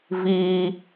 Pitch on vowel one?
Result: high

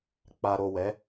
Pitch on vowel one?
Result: low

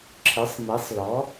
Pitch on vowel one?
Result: rising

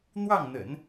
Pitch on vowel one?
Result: falling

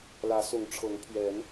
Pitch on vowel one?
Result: rising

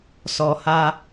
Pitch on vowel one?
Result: low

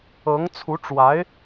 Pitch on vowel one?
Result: rising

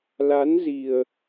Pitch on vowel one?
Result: rising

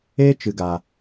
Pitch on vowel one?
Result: high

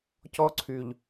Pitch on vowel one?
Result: high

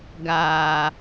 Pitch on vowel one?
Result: low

